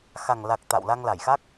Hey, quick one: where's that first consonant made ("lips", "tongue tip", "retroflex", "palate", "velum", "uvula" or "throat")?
velum